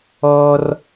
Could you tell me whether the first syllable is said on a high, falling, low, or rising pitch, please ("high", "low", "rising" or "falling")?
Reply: high